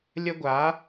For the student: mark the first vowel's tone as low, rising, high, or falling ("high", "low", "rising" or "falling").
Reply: high